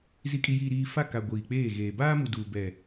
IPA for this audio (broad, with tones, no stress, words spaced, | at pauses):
zi˨kʼi˨jiː˨ɾiː˨ fa˦˨ka˨ ɡʷiː˨k͡peː˦˨ɣeː˨ baː˦mu˨duː˨bɛ˨